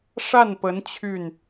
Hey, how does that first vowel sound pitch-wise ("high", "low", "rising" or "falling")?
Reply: falling